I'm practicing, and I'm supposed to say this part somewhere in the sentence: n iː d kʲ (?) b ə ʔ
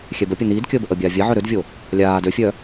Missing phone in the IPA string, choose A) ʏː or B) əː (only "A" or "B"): B